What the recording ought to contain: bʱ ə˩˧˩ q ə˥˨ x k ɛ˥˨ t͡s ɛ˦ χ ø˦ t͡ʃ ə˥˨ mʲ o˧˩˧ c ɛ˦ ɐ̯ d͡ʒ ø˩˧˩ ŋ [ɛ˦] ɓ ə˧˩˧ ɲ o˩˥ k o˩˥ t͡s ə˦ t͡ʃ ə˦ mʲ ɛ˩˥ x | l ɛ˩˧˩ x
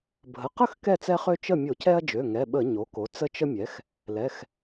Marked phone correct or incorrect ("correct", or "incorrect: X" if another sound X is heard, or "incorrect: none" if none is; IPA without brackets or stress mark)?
incorrect: ɛ˩˧˩